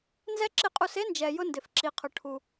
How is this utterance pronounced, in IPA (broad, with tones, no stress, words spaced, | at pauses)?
nzɛ˦ǁɪ˦˨qʼu˧s e˦nd͡ʒɛ˨jʊ˧ ndɪ˨fǁi˨qʰʊ˨ ʈʰu˨